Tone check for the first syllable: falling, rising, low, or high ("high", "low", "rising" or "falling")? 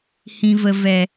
low